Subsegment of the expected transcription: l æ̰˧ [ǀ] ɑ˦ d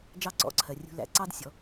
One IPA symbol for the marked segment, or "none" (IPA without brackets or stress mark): ǀ